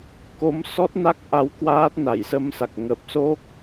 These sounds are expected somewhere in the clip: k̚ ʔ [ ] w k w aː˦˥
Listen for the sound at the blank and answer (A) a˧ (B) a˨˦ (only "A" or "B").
B